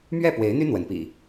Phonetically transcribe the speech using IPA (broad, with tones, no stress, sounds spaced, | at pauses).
m ɥ ɛ˥˨ p w e˨˦ ɪ̯ n̪ y˦ n̪ w ə˨˦ n p ḭ˨˩